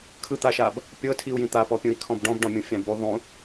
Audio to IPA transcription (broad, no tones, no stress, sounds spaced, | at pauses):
kʰ ɯ t̪ a ʃ a b | pʲ ɤ tʰ i u̯ j ĩ t̪ a p ɔ pʲ ũ i̯ kʰ ɔ̃ b ɖ ɔ̃ b ɖ ɔ̃ mʲ ũ fʲ ã b u ðˤ ũ